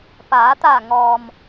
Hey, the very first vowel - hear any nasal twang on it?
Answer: no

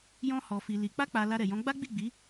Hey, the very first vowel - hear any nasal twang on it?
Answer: yes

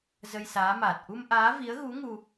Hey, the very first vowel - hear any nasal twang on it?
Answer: no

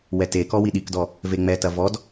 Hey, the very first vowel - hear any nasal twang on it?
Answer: no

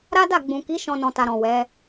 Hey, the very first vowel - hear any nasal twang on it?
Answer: no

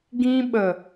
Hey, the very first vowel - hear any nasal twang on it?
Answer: yes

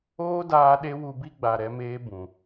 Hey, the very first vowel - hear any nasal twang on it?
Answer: no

